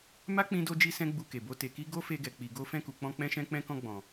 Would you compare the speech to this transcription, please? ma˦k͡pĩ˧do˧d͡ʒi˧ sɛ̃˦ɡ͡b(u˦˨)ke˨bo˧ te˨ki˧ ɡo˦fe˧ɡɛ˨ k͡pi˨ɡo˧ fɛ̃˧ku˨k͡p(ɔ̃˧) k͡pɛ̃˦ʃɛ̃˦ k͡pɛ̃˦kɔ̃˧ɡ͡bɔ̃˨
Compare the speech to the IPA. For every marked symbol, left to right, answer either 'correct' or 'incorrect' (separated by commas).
incorrect, correct